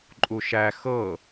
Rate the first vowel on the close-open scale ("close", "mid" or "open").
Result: close